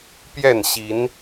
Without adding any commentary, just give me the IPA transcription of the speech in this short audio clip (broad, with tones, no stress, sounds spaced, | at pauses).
p j ɛ˥˨ n ɕ i˨˦ n